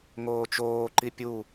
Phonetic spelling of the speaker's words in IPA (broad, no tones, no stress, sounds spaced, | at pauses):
ŋ oː t͡ʃ oː ǃ i pʲ u